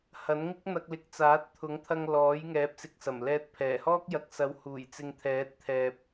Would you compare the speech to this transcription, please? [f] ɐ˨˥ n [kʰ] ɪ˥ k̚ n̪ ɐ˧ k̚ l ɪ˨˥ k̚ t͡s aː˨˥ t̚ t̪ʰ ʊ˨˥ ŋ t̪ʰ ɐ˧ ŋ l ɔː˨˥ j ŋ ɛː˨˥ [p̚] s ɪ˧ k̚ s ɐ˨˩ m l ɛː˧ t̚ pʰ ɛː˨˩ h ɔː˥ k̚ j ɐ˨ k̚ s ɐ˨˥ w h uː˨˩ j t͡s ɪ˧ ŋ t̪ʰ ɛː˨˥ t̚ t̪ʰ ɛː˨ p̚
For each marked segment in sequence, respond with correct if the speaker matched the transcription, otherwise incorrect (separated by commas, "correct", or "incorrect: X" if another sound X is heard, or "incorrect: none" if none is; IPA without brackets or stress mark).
incorrect: h, incorrect: ŋ, correct